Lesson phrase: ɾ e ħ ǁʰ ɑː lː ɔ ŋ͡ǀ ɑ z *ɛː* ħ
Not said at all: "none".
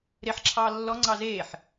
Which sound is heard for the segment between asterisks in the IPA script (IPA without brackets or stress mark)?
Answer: eː